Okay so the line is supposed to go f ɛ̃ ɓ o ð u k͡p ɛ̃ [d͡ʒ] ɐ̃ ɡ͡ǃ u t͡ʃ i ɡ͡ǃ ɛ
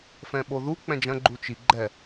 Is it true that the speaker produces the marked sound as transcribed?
yes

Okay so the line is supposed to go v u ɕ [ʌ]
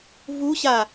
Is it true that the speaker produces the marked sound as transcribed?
no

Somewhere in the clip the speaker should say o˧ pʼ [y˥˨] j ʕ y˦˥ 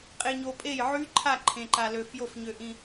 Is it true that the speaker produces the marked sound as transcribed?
no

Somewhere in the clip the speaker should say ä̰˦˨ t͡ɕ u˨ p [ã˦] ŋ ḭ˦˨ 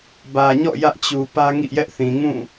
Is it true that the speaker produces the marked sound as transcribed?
no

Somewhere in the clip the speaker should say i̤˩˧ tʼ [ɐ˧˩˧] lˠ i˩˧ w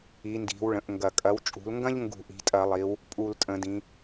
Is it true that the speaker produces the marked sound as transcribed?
yes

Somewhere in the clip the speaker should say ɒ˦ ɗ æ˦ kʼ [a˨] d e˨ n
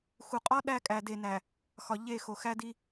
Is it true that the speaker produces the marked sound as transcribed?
no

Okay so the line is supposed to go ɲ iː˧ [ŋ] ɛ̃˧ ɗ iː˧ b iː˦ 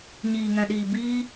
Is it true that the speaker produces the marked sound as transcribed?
yes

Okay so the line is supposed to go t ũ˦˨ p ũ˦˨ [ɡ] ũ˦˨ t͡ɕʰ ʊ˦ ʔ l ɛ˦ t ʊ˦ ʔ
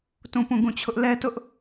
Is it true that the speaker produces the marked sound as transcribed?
yes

